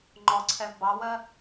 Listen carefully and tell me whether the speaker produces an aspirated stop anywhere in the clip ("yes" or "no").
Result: yes